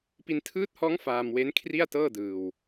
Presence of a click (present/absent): absent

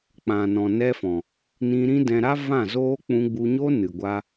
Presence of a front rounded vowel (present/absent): absent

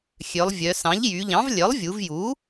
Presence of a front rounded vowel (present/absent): present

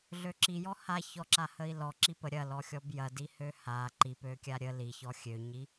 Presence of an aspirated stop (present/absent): absent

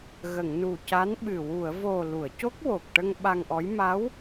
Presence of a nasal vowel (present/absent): absent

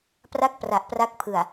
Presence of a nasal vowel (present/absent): absent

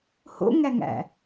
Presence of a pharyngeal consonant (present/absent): absent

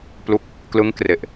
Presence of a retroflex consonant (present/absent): absent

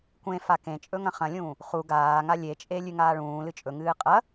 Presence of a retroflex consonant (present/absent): present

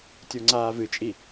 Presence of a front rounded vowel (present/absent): absent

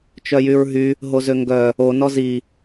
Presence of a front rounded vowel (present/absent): present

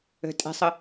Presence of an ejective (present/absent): present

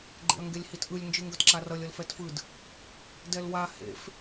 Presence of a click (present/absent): present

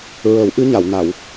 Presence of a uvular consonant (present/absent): absent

